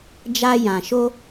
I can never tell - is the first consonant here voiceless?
no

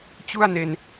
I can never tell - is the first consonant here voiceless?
yes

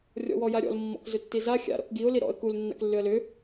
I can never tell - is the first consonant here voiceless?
no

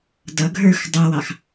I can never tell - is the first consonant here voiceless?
no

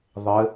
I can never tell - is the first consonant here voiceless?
no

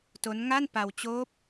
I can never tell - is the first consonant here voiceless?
yes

